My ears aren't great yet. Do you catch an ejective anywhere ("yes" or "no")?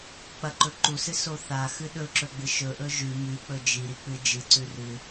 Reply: no